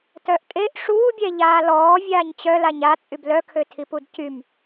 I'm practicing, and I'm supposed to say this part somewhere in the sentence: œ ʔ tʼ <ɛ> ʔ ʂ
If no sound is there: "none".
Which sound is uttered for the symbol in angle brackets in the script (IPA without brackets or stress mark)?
e